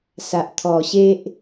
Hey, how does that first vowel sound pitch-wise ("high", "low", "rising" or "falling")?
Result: low